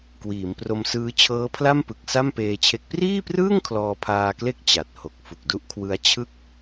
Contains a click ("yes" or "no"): no